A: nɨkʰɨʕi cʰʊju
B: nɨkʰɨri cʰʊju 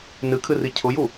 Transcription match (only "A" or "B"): B